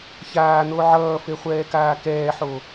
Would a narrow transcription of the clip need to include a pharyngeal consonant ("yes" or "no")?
yes